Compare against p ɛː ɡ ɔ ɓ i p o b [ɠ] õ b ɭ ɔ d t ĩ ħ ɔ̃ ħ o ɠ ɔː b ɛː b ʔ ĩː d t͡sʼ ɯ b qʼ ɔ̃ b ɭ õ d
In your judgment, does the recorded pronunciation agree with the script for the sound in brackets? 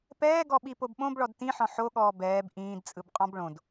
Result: no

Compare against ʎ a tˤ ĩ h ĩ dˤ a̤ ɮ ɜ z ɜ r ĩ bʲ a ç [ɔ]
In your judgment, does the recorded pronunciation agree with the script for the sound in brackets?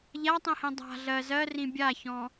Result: no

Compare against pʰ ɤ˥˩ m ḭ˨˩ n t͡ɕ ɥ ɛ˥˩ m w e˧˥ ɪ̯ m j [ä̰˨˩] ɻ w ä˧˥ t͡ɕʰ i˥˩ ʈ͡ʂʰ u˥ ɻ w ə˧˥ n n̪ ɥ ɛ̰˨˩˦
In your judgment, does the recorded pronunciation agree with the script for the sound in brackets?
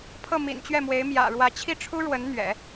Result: yes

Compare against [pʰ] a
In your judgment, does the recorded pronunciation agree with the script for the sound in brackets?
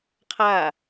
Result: no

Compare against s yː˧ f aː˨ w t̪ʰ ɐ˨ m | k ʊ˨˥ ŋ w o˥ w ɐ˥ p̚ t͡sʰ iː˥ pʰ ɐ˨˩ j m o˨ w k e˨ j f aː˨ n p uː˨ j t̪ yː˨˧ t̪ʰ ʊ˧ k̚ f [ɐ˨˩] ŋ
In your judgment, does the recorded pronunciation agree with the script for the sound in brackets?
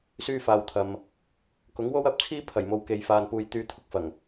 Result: yes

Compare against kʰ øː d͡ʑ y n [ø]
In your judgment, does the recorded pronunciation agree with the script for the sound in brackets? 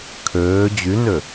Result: yes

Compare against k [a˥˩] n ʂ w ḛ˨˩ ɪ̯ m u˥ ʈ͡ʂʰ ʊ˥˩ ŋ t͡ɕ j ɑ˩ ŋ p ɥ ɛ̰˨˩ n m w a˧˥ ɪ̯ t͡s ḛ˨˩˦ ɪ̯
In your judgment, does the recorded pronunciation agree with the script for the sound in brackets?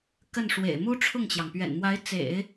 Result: no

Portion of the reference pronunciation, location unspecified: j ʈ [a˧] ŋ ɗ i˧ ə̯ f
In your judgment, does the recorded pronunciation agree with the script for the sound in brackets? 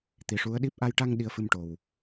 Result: yes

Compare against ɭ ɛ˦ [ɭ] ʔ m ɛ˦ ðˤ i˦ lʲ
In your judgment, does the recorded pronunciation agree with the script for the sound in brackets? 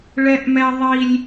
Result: no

